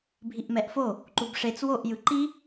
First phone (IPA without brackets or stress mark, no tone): bʱ